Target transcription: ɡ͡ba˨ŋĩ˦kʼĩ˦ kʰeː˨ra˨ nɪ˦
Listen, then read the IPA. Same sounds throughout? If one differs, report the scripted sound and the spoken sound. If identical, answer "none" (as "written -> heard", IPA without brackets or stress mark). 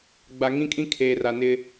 none